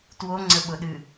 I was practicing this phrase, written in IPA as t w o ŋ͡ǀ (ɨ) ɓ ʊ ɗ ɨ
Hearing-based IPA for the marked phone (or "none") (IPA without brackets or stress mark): ə